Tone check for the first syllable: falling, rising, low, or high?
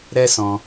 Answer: high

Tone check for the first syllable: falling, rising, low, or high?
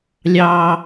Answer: high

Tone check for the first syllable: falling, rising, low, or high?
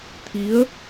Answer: rising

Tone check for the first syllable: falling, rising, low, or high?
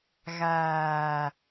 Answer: low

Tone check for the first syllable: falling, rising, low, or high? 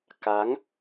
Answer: rising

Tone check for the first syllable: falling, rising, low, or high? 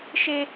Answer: high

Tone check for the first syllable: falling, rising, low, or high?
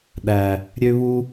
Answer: low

